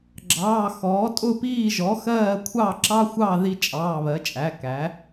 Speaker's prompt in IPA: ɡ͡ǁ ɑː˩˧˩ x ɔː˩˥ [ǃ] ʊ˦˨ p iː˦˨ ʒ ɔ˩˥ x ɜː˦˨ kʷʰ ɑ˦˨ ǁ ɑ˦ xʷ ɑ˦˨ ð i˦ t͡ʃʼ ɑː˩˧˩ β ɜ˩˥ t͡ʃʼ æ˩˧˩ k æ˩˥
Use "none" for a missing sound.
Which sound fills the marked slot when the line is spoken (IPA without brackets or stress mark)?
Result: tʼ